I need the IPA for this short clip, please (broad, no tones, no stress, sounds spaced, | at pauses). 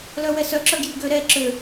l œ w ɛ s œ ǁ œ ɡ j y ɡ ø ɾ ɛ ǁ ø